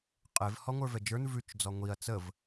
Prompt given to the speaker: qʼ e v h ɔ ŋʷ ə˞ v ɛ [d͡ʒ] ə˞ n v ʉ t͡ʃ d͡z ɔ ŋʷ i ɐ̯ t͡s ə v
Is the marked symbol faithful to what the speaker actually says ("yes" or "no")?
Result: yes